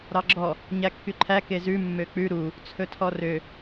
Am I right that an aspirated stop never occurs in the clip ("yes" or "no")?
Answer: no